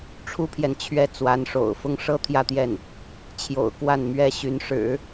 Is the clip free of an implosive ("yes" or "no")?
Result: yes